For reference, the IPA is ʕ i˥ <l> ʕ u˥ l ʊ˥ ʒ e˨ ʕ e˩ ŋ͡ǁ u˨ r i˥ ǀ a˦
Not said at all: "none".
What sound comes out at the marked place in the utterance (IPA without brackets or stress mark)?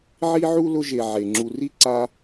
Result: none